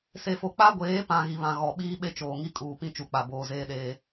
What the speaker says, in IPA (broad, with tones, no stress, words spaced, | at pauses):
se˨fo˨ k͡pa˦ɡʷeː˨˦pã˨ ɣi˨βã˨ ɣɔ˨ ɓiː˦ɓe˦t͡ʃoː˨ ŋi˦kʼuː˨pĩ˦ t͡ʃu˨k͡pa˨ boː˨zeː˦ɗeː˦